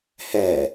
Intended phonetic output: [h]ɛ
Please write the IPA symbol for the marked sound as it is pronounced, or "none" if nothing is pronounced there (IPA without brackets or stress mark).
h